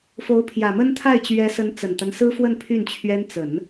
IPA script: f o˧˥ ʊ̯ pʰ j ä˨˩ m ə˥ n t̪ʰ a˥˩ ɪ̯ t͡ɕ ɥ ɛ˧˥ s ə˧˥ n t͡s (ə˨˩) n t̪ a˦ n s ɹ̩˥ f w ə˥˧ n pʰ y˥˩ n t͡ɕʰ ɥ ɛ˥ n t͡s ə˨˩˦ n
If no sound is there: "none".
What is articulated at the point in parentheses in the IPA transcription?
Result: ə˨˩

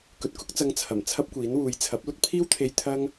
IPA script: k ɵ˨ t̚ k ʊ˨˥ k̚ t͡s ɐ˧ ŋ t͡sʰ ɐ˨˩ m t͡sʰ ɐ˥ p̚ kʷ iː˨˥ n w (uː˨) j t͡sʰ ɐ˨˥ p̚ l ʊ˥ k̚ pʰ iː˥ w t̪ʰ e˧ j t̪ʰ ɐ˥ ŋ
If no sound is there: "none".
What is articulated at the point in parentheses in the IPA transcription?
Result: uː˨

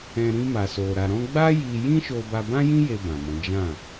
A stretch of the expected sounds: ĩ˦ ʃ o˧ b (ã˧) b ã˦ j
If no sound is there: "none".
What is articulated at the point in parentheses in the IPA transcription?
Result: a˧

